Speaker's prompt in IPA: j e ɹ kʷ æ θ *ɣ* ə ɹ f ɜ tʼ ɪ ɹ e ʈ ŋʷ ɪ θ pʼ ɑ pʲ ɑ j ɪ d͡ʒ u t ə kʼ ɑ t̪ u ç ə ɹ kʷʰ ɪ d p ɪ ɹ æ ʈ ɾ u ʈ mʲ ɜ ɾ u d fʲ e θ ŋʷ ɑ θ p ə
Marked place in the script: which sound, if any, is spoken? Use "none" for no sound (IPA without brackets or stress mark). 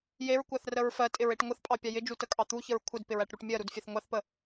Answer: r